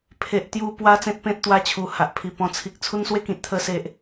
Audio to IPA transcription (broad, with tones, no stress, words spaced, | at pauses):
pʰe˨ʔ t̪ju˧pwa˧ t͡sẽ˦t̚pẽ˦t̚ t̪wa˦t͡ɕʰu˨˩ ha˨ʔpʰi˨˩ pɔ̃˨˩t͡sʰi˨k̚ t͡sʰu˦nswe˥˧kĩ˨t̚ t̪ʰə˧se˨ʔ